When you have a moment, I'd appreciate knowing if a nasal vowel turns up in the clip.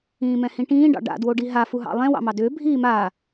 yes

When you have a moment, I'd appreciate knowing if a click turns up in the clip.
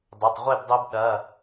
no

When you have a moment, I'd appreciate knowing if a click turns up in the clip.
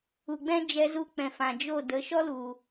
no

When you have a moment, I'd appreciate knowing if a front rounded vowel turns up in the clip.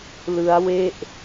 no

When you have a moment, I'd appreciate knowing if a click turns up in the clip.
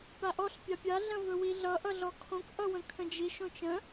no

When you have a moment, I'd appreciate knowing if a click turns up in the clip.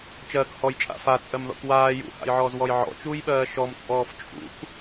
no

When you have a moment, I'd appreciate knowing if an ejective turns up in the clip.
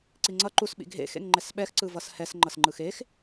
no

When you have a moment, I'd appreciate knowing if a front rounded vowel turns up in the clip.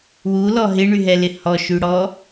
yes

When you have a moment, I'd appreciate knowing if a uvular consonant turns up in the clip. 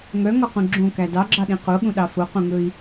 yes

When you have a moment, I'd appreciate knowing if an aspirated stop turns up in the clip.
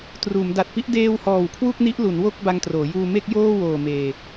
yes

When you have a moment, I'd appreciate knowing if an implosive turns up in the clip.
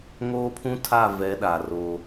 yes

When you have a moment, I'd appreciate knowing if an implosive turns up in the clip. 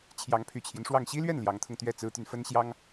no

